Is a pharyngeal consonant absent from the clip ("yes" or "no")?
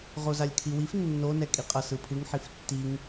no